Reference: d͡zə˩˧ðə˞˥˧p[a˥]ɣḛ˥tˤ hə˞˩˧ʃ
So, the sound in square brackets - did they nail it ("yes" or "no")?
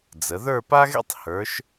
yes